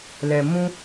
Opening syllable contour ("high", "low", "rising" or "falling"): low